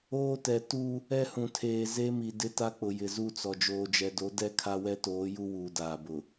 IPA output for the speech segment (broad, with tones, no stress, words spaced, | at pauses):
oː˦tɛ˨ tu˦ | ɛ˦hũ˨tʰeː˨ze˦ mi˨dɪ˦ta˦ k͡pʊ˨jɪ˨ zu˦˨t͡sɔ˨ d͡ʒoː˨d͡ʒɛ˨do˨˦ dɛ˦kʰa˦ wɛ˦toː˨˦ju˦ wuː˨daː˨bʊ˨